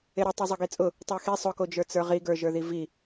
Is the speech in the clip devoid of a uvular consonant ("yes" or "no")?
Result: no